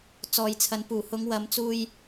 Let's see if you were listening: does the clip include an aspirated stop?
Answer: yes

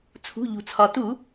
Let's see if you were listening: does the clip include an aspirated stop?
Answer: yes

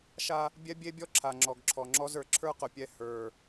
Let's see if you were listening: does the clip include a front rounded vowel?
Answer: no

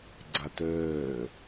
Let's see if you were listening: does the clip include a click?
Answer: yes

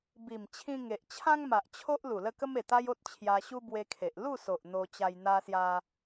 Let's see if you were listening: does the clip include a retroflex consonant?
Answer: no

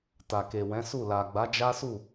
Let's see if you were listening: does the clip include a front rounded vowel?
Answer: no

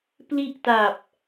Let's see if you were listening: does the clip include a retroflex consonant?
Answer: no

